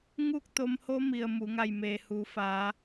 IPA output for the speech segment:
ŋuː˥˨k̚t̪o˧mho˧˥ mi˩ə̯ mu˩˧ ŋa˧˩jmeː˩huː˩˧faː˩˧

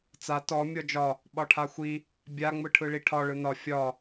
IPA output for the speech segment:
t͡sa tɔ mʲɔd͡ʒɒ | ɓɒʈʰaxʷi | bʲa ŋ͡mɯʈʰɯɭiʈʰɒ ɭɯnɒ fʲɒ

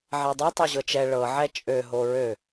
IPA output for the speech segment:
ʕɛdˤo tˤɤʑɤt͡ʃɛ ɭɤ ʕɛt͡ʃʼø ɦoɹø

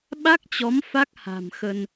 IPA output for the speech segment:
ɓa˦˥k̚t͡ɕɔ˨˦m fa˦˥k̚ha̤˨˩mxə˧n

